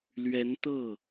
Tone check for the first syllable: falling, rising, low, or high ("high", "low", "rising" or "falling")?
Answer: rising